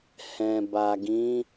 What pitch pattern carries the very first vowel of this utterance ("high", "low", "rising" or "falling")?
low